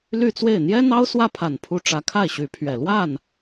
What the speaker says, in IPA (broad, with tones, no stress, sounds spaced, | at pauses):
l y˥˧ t͡s w e˥˩ ɪ̯ n̪ j ɛ˥ n̪ ɑ˥ ʊ̯ s w ä˥˩ pʰ a˨˩ n pʰ u˧˥ ʈ͡ʂ ä˧˥ kʰ a˥˩ ɪ̯ ɕ y˧˥ pʰ ɥ ɛ˨˩ l w a˥˩ n